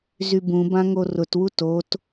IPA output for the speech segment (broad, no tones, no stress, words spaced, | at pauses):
zybũbã ŋorʊtwu tot